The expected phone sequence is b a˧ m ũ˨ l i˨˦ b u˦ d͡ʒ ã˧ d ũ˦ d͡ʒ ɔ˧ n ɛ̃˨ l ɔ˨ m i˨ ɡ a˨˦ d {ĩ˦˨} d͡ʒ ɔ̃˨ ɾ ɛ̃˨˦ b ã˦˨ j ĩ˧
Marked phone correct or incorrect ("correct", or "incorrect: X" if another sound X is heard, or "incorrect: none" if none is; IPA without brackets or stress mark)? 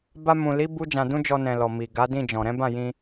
correct